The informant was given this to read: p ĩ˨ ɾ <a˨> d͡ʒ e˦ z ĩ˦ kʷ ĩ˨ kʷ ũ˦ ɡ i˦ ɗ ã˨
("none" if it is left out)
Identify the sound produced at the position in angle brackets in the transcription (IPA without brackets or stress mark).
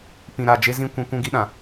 a˨